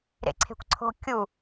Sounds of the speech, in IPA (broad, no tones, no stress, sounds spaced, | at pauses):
ɾ ḛ ǀʰ e̤ kʷ ǀʰ o̤ kʲ u